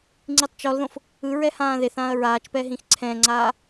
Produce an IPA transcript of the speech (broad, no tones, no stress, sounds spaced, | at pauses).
ŋ͡ǀ i tˤ t͡ʃ ɔ l ð õ f | ɯ ɹ ɛ h ãː ð e θ ãː ɐ̯ ɹ aː t͡ʃ p ɛ ɦ ĩ x ǀʰ ɛ̃ ŋ͡ǀ aː